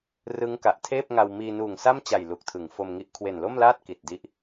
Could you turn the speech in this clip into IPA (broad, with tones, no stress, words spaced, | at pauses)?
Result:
rɯ˦˥ŋka˨˩ʔtʰeː˥˩p̚ŋa˧w miː˧nuː˨˩ŋsa˥˩mt͡ɕa˨˩j lu˨˩k̚tʰɯ˩˦ŋfo˧mŋi˦˥ʔ kʰwe˨˩nlo˥˩mlaː˥˩t̚ ki˨˩t̚di˦˥ʔ